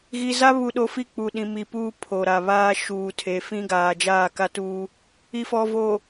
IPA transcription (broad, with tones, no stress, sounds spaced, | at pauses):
ɣ i˨ z a˦ β u˨ ɗ o˨ f i˦˨ k͡p u˨ ɗ ĩ˨ m i˨ p uː˦ pʰ o˨ ɾ a˨ β aː˦ ʃ uː˨ tʰ e˨ f ĩ˦ ɡ aː˨ d͡ʒ aː˦˨ k a˦ t uː˦ | i˨ f ɔ˨ v o˨